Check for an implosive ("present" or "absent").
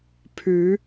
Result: absent